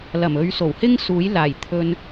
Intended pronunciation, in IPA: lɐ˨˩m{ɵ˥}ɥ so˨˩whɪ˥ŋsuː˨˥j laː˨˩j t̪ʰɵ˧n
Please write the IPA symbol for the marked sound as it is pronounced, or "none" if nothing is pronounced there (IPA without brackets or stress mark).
ɵ˨˧